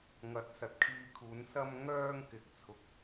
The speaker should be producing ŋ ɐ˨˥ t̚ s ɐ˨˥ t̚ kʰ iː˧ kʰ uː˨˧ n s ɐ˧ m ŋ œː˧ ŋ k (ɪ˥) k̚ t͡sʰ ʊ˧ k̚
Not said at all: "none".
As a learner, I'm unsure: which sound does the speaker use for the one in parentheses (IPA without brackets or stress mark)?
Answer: ɪ˧